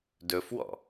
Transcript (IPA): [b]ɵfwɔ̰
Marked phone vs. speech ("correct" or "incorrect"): incorrect